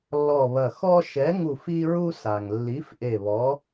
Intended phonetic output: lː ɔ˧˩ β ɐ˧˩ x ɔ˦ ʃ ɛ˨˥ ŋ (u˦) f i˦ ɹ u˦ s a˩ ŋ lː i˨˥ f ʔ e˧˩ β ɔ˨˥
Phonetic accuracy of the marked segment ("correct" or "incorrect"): incorrect